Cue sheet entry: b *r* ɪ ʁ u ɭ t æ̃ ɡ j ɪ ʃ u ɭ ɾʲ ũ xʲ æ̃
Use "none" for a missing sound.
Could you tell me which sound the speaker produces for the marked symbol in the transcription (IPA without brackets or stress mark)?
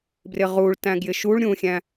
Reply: r